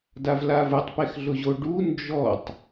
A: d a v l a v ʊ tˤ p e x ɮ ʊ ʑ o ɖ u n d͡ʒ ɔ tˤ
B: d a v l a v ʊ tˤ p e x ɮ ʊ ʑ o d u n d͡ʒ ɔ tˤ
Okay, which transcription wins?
A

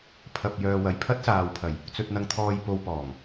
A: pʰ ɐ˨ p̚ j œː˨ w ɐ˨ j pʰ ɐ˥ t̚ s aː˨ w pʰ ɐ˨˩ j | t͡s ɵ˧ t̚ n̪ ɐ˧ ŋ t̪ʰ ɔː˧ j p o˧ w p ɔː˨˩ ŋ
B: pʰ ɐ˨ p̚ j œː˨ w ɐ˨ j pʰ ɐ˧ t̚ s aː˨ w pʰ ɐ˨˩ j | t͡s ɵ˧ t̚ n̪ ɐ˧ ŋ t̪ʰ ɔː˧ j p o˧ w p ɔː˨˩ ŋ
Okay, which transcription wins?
A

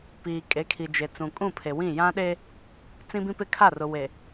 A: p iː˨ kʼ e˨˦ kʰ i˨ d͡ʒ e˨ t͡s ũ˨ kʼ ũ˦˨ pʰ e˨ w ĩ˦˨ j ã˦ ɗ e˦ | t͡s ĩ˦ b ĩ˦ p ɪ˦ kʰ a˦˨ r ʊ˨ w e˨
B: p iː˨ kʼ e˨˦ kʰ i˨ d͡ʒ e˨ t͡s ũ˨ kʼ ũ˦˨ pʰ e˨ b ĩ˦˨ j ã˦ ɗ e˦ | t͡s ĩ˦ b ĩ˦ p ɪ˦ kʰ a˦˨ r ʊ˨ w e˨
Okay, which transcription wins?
A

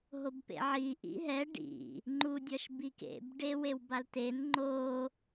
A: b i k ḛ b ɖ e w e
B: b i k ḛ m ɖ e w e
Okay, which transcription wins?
A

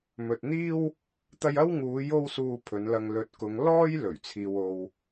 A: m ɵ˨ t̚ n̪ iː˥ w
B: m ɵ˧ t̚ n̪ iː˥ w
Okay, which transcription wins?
A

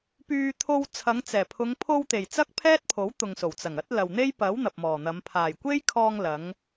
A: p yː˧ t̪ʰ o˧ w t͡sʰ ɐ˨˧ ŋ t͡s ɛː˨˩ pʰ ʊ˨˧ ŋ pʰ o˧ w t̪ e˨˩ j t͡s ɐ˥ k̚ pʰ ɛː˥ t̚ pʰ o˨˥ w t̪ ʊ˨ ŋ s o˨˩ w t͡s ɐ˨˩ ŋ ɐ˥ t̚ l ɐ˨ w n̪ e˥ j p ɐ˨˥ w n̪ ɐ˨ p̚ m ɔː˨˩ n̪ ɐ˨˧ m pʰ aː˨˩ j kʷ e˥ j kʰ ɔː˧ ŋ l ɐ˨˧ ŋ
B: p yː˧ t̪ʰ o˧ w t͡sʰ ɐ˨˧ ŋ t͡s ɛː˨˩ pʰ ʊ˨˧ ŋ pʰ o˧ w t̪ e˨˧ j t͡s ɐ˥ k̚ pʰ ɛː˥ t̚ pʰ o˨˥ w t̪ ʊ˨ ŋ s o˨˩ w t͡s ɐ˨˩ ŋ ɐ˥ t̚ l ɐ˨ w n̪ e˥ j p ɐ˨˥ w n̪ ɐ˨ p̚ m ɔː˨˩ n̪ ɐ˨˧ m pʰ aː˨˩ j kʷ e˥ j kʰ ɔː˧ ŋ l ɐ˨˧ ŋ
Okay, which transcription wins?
A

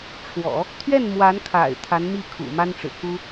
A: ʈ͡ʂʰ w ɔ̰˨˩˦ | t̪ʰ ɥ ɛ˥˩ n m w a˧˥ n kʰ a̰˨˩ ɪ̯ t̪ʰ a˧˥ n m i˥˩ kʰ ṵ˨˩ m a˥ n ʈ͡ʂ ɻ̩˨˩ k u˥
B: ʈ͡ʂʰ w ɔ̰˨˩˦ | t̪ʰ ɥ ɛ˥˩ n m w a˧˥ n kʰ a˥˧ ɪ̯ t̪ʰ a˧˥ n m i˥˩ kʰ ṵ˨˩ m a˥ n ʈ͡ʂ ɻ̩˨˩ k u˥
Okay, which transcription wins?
A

